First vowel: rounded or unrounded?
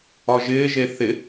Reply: rounded